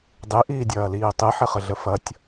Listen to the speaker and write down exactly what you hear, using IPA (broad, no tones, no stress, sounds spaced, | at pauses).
dˤ i ʔ iː dʲ ɐː l iː tˤ i ħ ɪ χ ə ɮ ə f ɐ tʲ